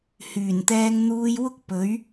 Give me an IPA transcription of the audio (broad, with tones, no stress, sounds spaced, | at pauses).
h yː˨˩ n t̪ ɛː˧ ŋ n̪ uː˧ j w ʊ˥ k̚ p ɵ˨˥ ɥ